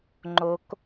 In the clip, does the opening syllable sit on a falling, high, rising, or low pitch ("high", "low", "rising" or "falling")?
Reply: rising